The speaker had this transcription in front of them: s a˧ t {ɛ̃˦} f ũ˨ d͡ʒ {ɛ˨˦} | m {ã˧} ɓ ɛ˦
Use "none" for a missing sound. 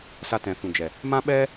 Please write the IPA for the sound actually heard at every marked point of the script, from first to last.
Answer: ɛ̃˨, ɛ˨, ã˦

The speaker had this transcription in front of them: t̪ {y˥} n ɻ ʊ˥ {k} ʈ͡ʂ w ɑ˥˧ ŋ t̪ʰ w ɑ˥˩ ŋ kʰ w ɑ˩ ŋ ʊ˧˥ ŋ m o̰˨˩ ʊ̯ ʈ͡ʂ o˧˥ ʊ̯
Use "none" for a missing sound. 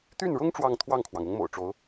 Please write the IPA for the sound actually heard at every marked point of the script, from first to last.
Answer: y˥˩, ŋ

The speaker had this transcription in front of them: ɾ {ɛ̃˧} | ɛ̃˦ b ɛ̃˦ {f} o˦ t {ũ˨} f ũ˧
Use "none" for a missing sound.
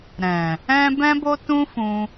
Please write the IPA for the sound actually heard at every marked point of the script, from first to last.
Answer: ɛ̃˨, b, ũ˦

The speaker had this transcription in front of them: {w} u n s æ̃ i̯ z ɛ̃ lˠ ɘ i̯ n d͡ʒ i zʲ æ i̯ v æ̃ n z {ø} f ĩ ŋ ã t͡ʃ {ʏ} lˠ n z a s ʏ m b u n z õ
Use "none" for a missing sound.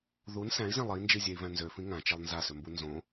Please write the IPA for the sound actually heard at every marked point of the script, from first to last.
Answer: ð, ø, ɛ

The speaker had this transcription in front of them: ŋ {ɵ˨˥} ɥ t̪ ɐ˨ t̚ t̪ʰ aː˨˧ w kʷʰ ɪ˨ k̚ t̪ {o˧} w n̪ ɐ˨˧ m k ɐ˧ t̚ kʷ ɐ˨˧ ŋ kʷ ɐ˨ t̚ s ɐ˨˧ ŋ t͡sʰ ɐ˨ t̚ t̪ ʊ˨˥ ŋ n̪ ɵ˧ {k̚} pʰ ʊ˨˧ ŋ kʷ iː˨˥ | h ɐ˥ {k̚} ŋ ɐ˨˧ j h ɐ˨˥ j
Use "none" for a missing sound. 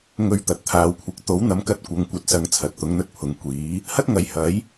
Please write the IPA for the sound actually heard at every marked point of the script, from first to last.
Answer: ɵ˨, o˨˥, t̚, t̚

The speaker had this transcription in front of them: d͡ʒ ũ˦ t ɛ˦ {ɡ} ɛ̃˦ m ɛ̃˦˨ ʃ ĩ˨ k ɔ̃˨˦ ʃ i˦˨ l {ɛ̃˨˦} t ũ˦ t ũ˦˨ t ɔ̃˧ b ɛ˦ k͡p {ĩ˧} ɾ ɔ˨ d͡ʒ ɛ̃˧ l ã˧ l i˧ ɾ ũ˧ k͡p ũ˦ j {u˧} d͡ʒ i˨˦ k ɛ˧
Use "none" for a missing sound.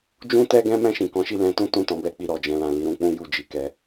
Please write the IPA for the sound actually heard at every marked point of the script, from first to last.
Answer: ɡ, ɛ̃˨˦, i˧, u˦˨

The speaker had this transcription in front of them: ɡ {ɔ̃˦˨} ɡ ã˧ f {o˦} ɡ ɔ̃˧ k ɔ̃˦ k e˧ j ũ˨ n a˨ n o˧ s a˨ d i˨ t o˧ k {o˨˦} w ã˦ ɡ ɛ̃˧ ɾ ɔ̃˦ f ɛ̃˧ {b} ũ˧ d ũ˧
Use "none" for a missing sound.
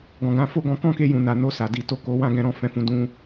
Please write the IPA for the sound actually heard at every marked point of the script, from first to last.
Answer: ɔ̃˨, o˦, o˧, f

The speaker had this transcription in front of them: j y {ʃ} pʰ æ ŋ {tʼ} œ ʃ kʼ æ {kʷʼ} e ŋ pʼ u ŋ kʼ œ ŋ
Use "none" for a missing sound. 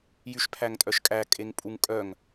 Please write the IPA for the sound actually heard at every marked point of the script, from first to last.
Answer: ʃ, tʼ, kʼ

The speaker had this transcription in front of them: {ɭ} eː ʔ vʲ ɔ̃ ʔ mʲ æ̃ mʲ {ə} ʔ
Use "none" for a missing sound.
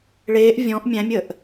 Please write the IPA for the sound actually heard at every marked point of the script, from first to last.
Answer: ɭ, ə

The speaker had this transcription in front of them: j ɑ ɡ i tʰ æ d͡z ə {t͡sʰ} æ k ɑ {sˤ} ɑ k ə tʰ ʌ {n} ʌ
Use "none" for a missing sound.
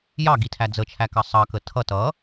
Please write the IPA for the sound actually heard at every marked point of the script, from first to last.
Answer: t͡ʃʰ, sˤ, t

